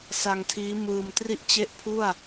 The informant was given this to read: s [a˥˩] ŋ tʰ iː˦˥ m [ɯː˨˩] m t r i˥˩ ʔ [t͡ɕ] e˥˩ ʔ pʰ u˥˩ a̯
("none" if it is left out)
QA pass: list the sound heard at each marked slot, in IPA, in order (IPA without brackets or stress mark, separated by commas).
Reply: a˧, ɯː˧, t͡ɕ